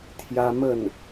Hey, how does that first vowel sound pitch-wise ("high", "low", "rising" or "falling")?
high